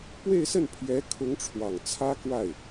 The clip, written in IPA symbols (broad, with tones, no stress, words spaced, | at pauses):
pwe˥˧ɪ̯sə˥˩npʰjɛ˧˥ kʰʊ˧˥ŋʈ͡ʂʰwɑ˨˩ŋ t͡sʰä˥kwa˥˩ɪ̯